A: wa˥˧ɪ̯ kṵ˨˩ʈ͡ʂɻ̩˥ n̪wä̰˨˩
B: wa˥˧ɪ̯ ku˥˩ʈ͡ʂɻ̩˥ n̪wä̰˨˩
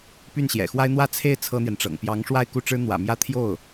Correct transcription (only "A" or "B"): B